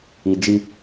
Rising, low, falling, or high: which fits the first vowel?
low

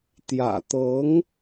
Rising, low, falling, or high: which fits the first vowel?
low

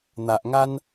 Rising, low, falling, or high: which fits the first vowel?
low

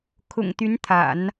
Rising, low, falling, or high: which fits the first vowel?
low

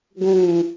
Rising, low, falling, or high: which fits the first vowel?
low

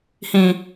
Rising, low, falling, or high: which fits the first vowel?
low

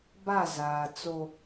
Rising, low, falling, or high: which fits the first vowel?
falling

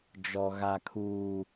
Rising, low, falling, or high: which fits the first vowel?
low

